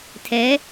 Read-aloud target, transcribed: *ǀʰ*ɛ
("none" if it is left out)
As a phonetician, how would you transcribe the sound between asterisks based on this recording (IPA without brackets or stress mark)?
tʰ